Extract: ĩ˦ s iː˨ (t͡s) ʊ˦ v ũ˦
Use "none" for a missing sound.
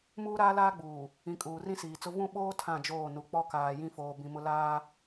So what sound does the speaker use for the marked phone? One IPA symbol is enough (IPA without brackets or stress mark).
t͡s